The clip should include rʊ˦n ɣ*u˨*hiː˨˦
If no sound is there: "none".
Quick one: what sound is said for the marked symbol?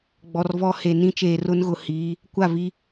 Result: ʊ˨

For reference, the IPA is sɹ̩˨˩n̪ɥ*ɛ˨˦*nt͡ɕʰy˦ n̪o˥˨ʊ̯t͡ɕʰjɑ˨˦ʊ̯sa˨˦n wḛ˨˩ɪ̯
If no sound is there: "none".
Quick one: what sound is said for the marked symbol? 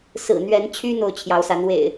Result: ɛ˨˦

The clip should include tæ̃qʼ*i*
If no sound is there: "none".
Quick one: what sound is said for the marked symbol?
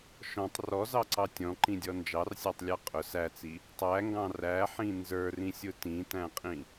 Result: ĩ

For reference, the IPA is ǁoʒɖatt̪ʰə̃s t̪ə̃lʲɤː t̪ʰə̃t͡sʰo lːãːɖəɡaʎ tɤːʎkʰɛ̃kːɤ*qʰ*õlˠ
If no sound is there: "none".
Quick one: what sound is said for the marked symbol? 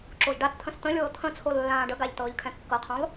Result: qʰ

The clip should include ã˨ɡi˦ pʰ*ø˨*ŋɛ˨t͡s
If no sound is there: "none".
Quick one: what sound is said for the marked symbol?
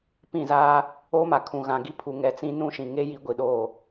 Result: u˨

